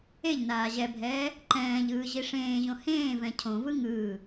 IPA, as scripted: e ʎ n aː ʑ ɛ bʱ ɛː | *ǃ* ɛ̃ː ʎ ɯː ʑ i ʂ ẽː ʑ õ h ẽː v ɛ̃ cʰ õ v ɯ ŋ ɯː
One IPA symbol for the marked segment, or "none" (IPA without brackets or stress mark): ǃ